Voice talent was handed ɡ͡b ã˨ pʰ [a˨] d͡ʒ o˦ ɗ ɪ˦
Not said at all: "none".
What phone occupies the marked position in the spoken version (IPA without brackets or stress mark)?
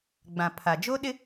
a˨